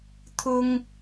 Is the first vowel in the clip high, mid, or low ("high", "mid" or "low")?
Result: high